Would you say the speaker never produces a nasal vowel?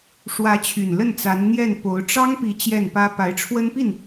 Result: yes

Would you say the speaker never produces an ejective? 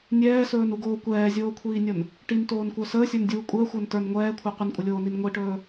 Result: no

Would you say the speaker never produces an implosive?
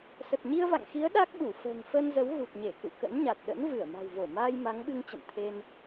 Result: no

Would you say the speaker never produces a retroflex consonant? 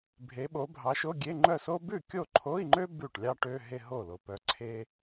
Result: no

